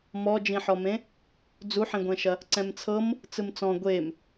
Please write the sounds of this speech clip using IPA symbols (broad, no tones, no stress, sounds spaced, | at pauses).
m ɔ d͡ʒ ĩ ħ ɔ m ẽ | d͡z u ħ ĩ ɡʷ ɛ̃ ʃ ɐ | ǀ ɛ̃ m t͡sʰ ɤ m | t͡s ɯ m t͡s ɔ̃ ɡʷ e m